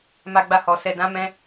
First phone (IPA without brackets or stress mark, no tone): m